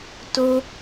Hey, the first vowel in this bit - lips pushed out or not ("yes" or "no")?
yes